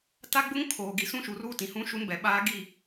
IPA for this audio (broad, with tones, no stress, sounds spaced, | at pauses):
t a˦ ɡ͡b ʊ˦ ŋ kʰ oː˨ ɡ i˨ s ũ˦ ʃ u˨ r uː˦ t ĩ˨ h ũ˦ ʃ u˦ n b ɛ˨ ɓ aː˦ ɡ i˦˨